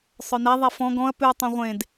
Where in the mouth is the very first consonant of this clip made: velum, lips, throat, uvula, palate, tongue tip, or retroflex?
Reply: tongue tip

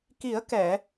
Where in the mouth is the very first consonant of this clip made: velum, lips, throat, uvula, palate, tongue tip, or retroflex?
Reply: velum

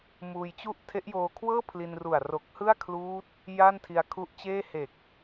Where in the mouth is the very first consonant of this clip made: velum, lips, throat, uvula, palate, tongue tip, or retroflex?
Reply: lips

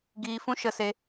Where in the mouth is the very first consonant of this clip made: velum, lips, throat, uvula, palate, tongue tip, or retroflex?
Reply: velum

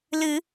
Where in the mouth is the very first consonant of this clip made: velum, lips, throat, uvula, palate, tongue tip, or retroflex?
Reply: tongue tip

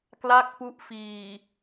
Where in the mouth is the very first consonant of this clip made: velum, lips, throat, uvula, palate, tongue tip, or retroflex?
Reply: velum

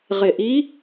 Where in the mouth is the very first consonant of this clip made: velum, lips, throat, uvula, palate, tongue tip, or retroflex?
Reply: uvula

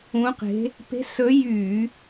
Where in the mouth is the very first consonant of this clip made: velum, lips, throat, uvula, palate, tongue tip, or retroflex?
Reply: uvula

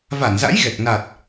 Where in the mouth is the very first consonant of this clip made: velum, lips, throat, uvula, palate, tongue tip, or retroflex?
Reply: lips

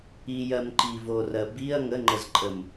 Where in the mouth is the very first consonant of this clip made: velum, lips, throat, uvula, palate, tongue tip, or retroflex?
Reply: palate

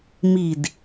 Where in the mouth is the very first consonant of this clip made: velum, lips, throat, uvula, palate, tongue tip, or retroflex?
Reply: lips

